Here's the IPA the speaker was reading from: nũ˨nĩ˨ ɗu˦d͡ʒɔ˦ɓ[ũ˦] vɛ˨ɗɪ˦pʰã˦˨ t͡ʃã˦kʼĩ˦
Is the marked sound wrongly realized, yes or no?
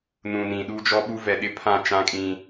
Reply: yes